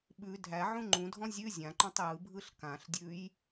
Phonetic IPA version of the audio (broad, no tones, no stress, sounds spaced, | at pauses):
ɓ ʉ dʱ æ ʕ ũ ŋ͡ǃ ũ dʱ ɔ̃ zʲ ʉ zʲ ã ǃ ɔ̃ tˤ j ɯ bʱ ɯ ɬ k ã ɬ dʲ ʉ j